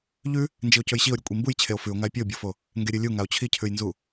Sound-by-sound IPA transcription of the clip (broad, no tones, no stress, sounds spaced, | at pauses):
ʎ ʉ | n d͡ʒ i o̯ c ɵ j ɕ i o̯ ɾʲ ʉ kʷʼ i m b u j t͡ɕʰ e o̯ f ʉ o̯ ŋ a e̯ pʲ ɵ o̯ bʲ o f o | ŋ ɡ e ɾʲ ɨ lʲ u ŋ a o̯ t͡ɕʰ i cʰ ʉ j n z u